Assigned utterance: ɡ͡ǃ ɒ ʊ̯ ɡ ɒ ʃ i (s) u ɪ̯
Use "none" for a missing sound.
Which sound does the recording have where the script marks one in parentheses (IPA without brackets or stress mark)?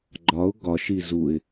z